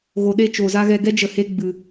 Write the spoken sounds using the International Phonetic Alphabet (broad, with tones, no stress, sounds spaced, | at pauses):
ɣ o˨ ɗ e˧ t͡ʃ o˧ z a˦ ɣ ɛ˧ ɡ ɛ˦ d͡ʒ ə˧ h e˦ ɡ͡b ɨ˧